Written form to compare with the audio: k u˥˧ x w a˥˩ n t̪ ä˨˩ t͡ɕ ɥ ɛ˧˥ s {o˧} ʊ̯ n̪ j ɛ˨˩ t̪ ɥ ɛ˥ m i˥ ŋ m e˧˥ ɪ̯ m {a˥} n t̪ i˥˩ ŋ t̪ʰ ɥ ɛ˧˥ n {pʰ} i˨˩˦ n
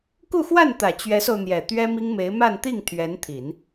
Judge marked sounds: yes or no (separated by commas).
yes, no, no